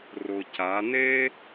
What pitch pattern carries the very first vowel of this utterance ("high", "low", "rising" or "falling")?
low